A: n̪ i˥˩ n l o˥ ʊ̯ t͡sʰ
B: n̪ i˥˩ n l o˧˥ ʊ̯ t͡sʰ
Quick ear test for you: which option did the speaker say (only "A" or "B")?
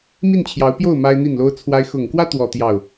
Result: A